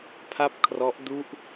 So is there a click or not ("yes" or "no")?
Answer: no